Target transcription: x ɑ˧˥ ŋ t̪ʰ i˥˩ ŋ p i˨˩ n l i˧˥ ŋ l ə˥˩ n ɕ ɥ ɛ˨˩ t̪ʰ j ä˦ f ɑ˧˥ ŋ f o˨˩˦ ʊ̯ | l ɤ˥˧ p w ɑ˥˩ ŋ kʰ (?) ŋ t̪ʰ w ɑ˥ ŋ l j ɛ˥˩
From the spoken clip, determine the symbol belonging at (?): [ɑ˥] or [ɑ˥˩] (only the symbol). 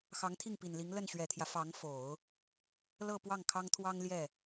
ɑ˥